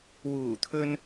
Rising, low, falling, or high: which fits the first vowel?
low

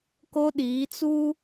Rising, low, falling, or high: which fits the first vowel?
high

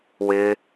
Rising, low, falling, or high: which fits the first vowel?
high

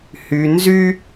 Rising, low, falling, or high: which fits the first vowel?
low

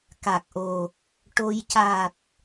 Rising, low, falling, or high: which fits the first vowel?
low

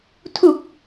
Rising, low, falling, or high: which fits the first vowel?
low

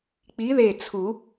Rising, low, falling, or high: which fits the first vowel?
rising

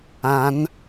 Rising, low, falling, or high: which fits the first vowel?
rising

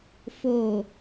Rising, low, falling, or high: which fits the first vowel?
low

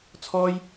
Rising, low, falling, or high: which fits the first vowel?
high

